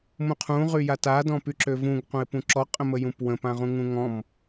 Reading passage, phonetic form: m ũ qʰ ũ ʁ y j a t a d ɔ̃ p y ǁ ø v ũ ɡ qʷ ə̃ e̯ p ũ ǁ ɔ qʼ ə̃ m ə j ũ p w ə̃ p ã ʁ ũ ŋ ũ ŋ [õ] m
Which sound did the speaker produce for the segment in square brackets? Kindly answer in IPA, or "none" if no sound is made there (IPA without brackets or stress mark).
ɔ̃